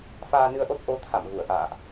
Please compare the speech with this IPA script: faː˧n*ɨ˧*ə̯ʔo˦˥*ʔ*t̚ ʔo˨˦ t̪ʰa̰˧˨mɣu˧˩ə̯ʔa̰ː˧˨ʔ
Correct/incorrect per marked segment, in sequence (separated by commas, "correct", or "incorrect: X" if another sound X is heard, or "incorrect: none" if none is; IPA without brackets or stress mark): correct, incorrect: none